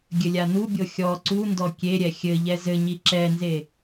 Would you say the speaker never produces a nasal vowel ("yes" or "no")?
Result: yes